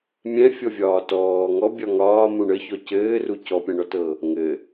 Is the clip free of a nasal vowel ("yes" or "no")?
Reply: no